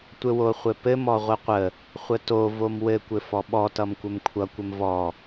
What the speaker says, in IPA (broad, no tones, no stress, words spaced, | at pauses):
tʷɘwoχʷɘpɘm ɔʁʷəqʷə | χʷəto vomwɘ kʷɘfɔɓɔ tʌmkʷɘmkʷʰʌ kʷɘmvɔ